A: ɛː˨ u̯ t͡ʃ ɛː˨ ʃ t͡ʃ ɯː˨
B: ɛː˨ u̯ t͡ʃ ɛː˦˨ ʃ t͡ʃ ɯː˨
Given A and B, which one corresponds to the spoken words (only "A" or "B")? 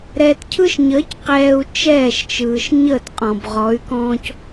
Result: B